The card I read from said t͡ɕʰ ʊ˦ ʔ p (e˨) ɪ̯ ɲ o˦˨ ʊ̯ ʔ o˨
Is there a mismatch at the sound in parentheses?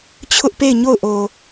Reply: yes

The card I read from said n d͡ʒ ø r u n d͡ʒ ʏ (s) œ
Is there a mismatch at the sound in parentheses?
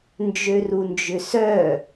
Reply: no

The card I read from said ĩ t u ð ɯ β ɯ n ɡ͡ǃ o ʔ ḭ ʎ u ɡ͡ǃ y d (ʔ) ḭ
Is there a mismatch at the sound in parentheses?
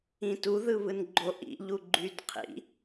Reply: yes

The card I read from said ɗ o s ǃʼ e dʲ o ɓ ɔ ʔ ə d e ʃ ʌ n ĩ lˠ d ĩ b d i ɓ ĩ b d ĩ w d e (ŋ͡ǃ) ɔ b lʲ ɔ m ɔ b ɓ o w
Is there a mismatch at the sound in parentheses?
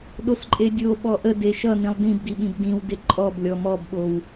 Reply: yes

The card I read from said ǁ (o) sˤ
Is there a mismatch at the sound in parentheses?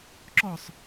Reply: yes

